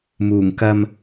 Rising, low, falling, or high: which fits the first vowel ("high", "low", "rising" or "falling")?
low